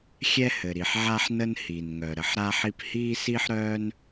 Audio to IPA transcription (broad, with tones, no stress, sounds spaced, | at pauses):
xʲ ɛ˧ h ɘ˩ ɾ i˩ ħ ʕ a˧ ħ n ə˧ n h i˩ n ŋ œ˩ ɾ ə˩ ħ ɾ a˧ ħ i˧ p h iː˧ s i˧ ħ ɾ œː˧ n